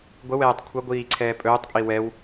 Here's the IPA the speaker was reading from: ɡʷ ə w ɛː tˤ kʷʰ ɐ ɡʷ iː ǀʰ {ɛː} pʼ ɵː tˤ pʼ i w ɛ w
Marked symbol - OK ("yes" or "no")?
yes